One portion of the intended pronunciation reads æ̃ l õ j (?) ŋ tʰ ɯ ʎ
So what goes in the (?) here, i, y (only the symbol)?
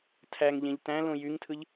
y